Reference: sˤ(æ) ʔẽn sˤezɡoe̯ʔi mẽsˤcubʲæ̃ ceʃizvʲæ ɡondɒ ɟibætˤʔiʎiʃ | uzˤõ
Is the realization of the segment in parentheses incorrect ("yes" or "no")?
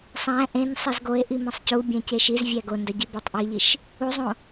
yes